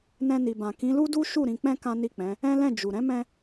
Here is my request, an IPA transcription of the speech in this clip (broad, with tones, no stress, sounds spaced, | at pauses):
n ɛ̃˧ n i˨ b ã˨ k ĩ˨˦ l u˦ d u˦ ʃ u˦˨ ɾ ĩ˧ k͡p ɛ̃˦ k ã˦ n i˦˨ k͡p ɛ̃˨˦ | ɛ̃˦ l ɛ̃˦˨ d͡ʒ u˨ ɾ ɛ̃˨˦ m ɛ̃˧